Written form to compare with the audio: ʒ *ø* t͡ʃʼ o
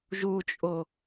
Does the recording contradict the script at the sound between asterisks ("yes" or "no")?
yes